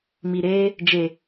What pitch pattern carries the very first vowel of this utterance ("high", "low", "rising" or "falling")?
low